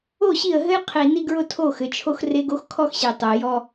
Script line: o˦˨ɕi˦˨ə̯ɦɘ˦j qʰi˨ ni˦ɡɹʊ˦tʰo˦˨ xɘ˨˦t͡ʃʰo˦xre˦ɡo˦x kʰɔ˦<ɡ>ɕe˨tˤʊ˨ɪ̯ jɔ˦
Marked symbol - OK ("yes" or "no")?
no